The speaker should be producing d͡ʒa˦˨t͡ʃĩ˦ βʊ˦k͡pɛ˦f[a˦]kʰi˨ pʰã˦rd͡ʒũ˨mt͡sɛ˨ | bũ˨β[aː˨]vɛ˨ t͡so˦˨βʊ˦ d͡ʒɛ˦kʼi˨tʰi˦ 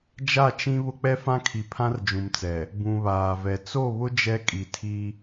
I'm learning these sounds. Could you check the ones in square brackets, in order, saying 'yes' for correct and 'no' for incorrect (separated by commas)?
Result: no, yes